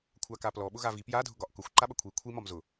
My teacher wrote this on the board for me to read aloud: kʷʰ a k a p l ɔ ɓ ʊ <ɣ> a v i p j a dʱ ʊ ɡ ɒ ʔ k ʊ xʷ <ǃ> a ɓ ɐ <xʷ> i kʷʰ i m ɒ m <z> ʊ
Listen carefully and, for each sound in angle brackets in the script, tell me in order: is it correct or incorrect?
correct, correct, incorrect: kʷʰ, correct

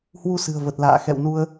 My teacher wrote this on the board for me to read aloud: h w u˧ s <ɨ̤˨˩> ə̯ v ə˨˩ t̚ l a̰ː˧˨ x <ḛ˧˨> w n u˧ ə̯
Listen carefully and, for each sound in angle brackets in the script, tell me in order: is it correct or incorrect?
correct, incorrect: ɛ̰˧˨

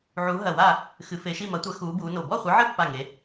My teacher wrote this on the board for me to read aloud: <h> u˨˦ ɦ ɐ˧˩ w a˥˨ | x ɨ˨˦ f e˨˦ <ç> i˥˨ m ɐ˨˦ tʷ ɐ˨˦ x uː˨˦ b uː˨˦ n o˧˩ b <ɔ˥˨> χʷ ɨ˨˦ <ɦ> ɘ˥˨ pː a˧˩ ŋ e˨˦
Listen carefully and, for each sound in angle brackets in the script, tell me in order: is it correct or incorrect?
incorrect: ʕ, incorrect: ʃ, correct, incorrect: ʕ

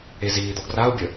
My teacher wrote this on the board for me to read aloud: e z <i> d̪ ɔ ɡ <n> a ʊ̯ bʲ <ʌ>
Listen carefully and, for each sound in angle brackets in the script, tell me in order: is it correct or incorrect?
incorrect: iː, incorrect: r, incorrect: ə

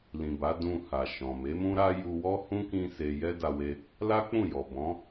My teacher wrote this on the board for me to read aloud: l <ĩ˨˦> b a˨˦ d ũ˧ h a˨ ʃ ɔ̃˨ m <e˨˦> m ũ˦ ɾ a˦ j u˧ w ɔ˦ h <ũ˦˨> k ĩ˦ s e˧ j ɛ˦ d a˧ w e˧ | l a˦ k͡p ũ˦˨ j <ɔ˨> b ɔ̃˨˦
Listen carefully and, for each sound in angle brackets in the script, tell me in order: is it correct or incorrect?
incorrect: ĩ˨, correct, incorrect: ũ˦, correct

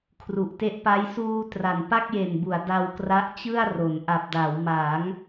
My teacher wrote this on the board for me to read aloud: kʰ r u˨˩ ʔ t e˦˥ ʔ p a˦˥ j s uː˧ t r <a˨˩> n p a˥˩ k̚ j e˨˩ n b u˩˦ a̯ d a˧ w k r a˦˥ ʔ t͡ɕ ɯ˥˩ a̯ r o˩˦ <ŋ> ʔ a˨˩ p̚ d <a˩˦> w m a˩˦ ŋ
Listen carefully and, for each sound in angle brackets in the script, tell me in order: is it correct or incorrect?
correct, incorrect: n, correct

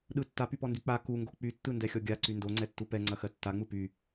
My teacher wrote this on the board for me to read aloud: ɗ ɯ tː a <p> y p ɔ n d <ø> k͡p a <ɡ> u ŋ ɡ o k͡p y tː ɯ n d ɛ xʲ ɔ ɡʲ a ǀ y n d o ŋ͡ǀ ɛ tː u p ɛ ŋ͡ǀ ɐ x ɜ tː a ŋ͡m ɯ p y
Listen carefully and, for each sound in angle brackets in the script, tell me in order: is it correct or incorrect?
correct, incorrect: y, incorrect: k

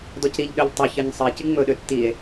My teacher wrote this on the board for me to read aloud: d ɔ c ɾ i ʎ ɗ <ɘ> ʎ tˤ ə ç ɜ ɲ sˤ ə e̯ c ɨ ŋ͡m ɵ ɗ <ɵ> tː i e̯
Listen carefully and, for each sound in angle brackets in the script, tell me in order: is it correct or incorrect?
incorrect: ø, incorrect: ø

